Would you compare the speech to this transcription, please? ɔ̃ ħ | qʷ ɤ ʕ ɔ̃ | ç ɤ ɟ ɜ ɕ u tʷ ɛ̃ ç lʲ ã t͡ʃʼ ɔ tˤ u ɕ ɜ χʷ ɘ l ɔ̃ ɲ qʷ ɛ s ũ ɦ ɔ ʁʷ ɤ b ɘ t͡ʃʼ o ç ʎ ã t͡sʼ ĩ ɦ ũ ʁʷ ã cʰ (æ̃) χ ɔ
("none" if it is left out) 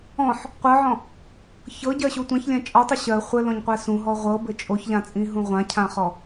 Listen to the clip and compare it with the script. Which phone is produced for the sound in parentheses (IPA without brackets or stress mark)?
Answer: ã